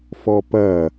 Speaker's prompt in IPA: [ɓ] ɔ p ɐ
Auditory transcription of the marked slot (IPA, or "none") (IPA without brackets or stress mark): f